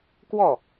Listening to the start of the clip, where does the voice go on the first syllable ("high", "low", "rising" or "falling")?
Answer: falling